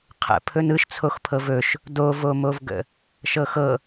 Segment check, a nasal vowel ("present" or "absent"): absent